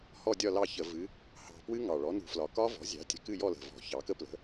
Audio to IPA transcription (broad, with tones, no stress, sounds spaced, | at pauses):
h ɔ˦˨ dʲ ɒ˦˨ l ɑ˦˨ ç ə˧˩˧ v ɨ˩˧ | h ɑ̤˨˩ p w ɨ˦˥ ŋ ɑ˨˩ ɭ ɔ˩˥ n ṳ˧˩˧ f l ɒ˨˩ k ɒ˦˥ v ɔ̤˩˥ zʲ ɑ̤˩˥ tʲ ə̤˨˩ k ɨ˦˨ j ɔ˦˨ l ə̤˨˩ v ɔ̤˧˩˧ ç ɑ˩˧ k ə˦˥ p l ə̤˩˥